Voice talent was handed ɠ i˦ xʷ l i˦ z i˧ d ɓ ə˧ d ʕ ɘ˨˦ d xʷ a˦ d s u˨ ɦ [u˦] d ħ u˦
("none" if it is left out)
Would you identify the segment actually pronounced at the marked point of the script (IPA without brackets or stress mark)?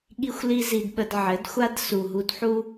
u˧